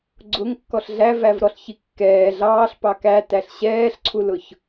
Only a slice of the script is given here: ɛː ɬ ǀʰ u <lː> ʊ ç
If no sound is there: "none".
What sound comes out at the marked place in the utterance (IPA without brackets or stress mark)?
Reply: l